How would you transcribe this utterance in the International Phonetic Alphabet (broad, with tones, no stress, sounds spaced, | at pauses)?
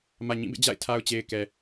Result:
m ä˨ ɲ ĩ˦˨ b ḛ˦˨ d͡ʑ a̰˦˨ ɪ̯ tʰ a˨ ʊ̯ t͡ɕ e˨ ɪ̯ k ɛ˨